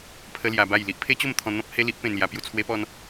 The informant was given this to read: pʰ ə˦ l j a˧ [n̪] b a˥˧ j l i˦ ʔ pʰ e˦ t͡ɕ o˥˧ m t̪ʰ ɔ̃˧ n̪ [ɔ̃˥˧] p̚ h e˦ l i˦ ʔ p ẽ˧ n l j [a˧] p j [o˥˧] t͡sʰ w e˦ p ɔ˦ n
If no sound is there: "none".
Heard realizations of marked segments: none, ɔ̃˦, a˧, u˥˧

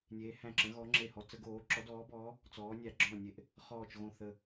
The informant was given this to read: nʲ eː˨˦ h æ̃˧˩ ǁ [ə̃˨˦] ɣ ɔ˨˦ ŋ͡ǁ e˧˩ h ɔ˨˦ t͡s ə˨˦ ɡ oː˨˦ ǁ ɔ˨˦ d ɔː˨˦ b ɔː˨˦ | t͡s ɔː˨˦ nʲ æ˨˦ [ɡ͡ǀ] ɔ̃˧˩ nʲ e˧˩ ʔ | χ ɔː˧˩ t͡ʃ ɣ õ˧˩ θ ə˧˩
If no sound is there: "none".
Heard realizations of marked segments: ə̃˨˦, ɡ͡ǁ

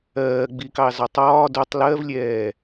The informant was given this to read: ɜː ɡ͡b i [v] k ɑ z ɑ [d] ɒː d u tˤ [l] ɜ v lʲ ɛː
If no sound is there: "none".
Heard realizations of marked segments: none, tˤ, l

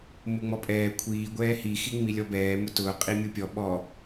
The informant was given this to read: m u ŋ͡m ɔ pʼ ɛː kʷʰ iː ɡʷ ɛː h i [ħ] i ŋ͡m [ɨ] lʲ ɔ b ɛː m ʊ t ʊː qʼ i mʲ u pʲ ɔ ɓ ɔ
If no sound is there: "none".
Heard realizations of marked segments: x, i

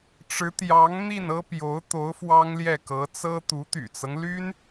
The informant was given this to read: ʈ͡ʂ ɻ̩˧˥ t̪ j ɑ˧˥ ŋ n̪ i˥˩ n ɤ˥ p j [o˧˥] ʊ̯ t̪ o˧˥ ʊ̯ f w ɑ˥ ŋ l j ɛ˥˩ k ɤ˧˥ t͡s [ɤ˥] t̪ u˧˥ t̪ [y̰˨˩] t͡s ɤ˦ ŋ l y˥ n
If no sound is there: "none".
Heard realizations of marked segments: o˧˥, ɤ˥, y̰˨˩

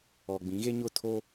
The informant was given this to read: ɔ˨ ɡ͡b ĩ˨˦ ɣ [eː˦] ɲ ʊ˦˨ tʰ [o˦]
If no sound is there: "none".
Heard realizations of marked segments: e˦, o˦

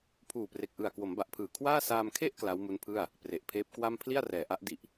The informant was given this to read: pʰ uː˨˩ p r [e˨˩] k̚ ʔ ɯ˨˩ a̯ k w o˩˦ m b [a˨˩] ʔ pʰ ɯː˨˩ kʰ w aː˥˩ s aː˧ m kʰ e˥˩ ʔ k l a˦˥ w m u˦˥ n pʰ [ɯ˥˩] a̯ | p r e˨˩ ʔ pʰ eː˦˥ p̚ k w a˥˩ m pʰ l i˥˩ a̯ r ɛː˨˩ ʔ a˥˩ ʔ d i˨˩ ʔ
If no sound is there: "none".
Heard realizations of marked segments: e˨˩, a˨˩, ɯ˥˩

